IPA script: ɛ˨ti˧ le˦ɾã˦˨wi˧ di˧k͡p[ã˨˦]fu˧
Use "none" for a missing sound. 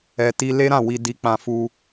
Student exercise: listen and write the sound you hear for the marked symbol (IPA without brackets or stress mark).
ã˧